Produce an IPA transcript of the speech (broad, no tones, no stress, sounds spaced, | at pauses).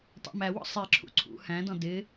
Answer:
tˤ ɑ̰ m æ w ɔ̰ sˤ i ǁʰ ṵ ǀʰ ṵ h æ̃ d ɔ̃ d ɪ